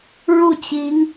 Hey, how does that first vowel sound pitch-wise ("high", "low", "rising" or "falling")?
falling